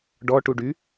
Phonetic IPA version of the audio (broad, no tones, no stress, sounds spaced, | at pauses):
ɖ ɔ ʈ u ɖ y